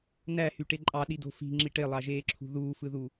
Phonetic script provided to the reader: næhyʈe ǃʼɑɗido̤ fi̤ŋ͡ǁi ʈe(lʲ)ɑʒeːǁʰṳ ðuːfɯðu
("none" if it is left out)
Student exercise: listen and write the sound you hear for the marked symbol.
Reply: lˠ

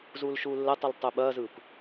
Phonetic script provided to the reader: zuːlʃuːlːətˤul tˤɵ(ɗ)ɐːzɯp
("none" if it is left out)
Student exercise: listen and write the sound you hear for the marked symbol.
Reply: ɓ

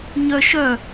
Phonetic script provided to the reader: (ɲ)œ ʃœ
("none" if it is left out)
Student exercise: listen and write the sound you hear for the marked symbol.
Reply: ɲ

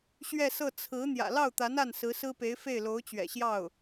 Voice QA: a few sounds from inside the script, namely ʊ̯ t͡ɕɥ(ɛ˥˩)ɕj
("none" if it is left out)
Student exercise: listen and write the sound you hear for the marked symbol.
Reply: ɛ̰˨˩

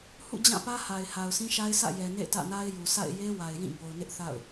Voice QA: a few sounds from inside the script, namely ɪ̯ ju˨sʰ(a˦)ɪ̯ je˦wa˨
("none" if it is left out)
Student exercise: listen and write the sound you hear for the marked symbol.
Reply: a̰˦˨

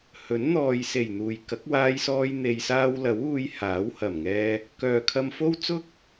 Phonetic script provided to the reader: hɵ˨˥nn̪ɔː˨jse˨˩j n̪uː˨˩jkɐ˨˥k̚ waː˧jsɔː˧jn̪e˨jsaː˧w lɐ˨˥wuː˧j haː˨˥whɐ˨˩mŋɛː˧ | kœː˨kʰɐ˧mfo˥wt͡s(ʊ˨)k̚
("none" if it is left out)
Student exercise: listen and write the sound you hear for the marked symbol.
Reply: ʊ˥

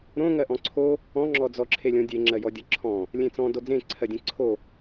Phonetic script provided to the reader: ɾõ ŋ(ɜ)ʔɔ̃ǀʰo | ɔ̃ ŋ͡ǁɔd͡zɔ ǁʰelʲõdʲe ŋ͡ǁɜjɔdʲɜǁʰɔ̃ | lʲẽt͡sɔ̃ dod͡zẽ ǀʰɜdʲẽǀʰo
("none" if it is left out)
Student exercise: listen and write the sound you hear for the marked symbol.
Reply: ɜ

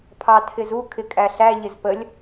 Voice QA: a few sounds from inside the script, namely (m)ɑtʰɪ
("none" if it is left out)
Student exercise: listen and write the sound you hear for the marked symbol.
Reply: pʰ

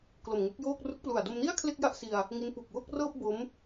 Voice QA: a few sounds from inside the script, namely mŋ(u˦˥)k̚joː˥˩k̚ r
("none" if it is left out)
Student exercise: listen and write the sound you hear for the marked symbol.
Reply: u˦˥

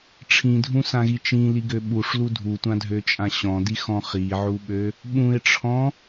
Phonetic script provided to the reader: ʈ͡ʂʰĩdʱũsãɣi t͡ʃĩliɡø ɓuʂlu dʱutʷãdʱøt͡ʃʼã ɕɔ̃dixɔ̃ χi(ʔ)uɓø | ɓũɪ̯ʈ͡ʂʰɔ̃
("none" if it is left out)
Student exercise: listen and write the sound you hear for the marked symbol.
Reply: ʕ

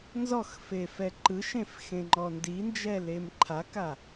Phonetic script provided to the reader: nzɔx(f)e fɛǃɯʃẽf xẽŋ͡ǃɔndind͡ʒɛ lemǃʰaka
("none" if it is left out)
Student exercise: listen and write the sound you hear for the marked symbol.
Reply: f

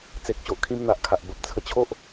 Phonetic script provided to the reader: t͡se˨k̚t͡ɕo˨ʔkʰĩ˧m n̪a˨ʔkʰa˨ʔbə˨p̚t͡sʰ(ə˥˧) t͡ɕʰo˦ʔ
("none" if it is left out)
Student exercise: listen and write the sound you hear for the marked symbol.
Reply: ə˧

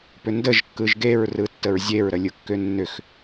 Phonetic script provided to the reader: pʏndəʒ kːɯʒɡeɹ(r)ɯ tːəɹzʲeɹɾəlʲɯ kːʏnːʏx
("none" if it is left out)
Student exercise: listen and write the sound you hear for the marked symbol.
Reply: r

